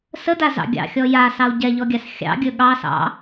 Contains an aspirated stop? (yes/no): no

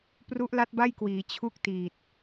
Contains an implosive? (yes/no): no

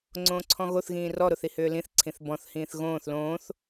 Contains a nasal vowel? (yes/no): yes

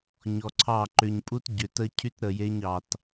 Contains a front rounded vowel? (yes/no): yes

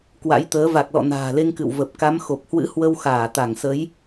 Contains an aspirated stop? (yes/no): no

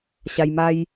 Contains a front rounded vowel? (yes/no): no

